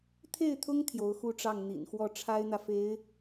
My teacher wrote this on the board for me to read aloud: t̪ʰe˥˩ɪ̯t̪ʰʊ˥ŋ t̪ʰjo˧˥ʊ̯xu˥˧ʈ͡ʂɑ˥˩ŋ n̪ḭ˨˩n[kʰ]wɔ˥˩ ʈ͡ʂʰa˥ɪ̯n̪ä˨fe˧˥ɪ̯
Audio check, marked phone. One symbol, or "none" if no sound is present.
x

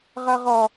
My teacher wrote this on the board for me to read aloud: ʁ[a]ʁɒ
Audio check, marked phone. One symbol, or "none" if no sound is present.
a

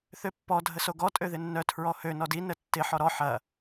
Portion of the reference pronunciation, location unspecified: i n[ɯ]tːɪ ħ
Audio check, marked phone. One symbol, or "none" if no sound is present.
ə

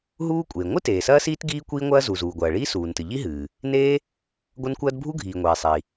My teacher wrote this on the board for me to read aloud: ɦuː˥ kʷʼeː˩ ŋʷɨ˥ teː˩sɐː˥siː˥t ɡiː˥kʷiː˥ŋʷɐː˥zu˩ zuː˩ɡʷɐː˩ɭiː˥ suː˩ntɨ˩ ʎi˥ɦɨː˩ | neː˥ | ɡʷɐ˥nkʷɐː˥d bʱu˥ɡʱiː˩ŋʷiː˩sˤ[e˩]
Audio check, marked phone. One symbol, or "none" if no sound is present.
i˩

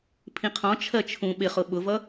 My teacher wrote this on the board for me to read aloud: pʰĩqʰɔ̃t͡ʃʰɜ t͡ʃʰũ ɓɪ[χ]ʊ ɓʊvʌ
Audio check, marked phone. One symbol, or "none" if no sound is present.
χ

